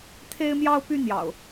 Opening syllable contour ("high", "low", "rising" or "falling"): high